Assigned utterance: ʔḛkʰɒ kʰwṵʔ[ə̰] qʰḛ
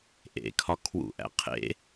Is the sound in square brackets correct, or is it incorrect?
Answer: incorrect